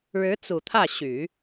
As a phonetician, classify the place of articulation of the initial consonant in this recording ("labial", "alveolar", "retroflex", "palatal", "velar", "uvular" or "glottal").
retroflex